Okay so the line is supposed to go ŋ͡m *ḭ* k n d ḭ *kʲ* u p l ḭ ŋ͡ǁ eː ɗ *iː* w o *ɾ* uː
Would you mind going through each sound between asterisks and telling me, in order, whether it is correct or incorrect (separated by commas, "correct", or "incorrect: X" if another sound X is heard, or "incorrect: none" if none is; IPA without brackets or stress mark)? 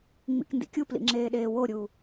correct, correct, incorrect: eː, incorrect: ɾʲ